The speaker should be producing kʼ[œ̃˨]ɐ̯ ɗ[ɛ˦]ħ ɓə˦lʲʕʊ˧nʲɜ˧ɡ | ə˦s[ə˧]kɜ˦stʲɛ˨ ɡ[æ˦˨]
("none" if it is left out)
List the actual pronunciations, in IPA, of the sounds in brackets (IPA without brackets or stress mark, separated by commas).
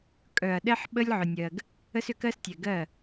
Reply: œ˨, ɛ˦, ʏ˧, ɜ˦˨